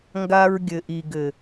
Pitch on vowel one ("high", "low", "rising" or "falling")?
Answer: high